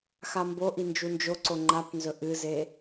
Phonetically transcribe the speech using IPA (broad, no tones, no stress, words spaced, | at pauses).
xamboʔi nd͡ʒund͡ʒoǀo ŋ͡ǃapnzɵ ʔɨze